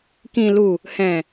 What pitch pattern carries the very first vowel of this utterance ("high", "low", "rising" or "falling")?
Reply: low